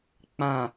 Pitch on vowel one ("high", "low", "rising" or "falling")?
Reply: low